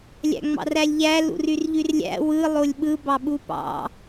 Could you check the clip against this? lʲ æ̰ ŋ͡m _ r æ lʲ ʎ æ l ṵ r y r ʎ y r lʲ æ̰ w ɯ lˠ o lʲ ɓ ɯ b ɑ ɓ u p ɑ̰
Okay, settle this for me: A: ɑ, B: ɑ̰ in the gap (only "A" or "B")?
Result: B